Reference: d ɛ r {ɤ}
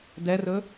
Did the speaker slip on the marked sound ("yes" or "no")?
yes